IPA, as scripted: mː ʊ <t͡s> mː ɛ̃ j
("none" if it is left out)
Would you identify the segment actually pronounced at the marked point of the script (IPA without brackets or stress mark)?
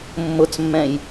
t͡s